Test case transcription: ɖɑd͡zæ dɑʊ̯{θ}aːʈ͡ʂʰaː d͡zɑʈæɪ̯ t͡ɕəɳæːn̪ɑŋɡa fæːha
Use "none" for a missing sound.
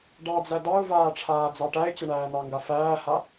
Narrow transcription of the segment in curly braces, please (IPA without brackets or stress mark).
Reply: v